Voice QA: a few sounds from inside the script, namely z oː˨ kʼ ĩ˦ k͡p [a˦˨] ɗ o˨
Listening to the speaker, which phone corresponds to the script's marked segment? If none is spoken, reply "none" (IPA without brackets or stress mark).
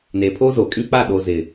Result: a˦˨